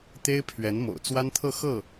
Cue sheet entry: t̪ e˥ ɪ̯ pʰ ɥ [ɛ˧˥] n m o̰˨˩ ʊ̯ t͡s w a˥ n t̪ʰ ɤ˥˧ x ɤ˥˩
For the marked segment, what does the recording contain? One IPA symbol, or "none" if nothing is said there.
ɛ˧˥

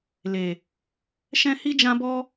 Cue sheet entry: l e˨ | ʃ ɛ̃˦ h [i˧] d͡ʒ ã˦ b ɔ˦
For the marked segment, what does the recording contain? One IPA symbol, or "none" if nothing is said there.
i˦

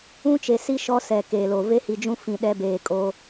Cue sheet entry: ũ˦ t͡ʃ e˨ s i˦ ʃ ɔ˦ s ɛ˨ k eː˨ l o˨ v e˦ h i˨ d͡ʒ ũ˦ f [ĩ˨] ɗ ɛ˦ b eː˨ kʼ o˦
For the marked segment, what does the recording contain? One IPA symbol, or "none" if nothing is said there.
ĩ˨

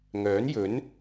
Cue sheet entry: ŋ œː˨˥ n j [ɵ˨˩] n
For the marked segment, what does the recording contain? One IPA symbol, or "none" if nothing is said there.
ɵ˨˥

